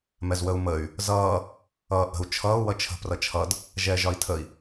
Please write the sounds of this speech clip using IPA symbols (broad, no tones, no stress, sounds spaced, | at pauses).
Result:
m ɛ z w ə u̯ m ə y̯ | z ʌː | ʌː ʔ ə̤ u̯ t͡ʃʰ ʌː u̯ w ʌ t͡ʃʰ ə̤ p r ʌ t͡ʃʰ ʌ d | ʒ ɛː ʒ ɒ i̯ tʰ ə i̯